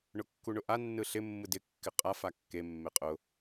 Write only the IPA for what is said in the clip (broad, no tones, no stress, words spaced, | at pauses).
ɳʊkːuɳʊʔa nːɯɬɪ mːɯdɪ kːɪqʼa fakːe mːeqʼʊ